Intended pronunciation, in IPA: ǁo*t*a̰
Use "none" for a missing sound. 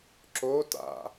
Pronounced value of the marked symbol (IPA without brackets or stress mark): t